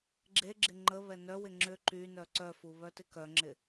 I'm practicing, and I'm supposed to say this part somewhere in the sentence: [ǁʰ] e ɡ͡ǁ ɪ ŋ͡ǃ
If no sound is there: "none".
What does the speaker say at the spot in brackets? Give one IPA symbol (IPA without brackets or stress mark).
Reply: ɡ͡ǁ